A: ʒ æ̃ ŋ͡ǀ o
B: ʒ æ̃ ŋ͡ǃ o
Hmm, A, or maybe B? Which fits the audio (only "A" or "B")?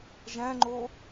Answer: B